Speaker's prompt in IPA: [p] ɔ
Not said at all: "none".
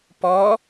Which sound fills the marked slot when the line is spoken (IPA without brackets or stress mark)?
p